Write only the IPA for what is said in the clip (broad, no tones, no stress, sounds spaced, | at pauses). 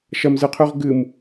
ʃ ɐ m z ɨ qʰ ʉ ʁ ɡ ɨ m